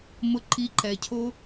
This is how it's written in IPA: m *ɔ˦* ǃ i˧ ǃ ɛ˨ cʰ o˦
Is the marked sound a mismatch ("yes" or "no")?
yes